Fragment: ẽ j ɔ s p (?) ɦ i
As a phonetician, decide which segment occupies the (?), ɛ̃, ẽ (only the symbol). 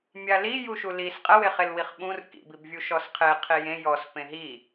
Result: ẽ